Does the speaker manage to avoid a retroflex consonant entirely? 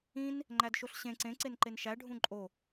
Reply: no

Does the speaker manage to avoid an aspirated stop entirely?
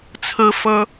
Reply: no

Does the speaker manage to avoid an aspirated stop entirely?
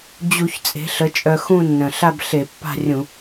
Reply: yes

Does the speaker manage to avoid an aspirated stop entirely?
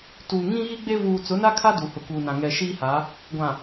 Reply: no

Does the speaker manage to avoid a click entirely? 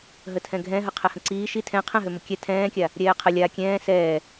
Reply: no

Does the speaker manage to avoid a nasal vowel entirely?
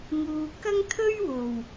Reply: yes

